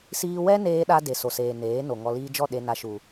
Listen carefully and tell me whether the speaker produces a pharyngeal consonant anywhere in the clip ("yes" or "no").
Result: no